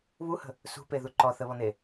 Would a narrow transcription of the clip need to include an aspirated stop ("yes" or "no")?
no